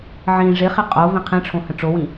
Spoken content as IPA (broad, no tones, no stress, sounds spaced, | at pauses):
ʕ ĩ ʐ ɪ χ ɪ qʼ o v ĩ qʰ ĩ ʈ͡ʂʰ õ h ə̃ ʈ͡ʂ o w ĩ